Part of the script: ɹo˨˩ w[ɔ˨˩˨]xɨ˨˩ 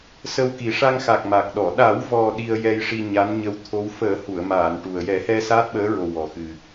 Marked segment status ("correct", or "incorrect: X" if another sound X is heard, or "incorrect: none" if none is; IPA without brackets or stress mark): incorrect: ɔ˨˩